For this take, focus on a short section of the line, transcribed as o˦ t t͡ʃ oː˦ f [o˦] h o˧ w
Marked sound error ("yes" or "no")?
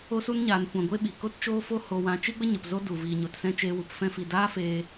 no